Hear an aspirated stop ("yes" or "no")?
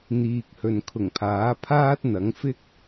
yes